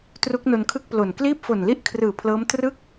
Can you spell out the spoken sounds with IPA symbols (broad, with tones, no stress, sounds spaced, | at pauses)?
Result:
t r u˦˥ k̚ n o˧ n kʰ ɯ˥˩ k̚ p l o˨˩ n k l iː˥˩ p̚ f o˨˩ n l i˥˩ ʔ kʰ r ɯː˨˩ pʰ l ɤː˦˥ m t r ɯ˥˩ k̚